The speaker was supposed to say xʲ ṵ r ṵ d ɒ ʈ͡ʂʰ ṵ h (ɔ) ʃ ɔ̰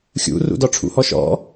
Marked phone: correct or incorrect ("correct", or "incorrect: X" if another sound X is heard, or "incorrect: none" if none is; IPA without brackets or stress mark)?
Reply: correct